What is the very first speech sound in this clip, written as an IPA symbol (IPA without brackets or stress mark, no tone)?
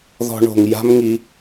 ð